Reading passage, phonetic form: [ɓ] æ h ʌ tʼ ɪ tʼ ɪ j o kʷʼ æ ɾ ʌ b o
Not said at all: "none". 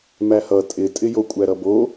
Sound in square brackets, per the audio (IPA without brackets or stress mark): m